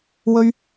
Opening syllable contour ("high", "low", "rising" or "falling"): high